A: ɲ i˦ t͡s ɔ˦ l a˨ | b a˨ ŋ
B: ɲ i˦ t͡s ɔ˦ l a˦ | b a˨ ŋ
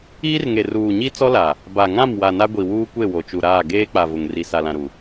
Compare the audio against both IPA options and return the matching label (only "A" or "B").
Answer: A